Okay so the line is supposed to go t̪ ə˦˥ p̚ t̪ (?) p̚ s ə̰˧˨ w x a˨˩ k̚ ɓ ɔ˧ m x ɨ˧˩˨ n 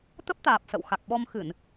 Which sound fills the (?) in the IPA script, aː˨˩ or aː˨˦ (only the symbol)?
aː˨˩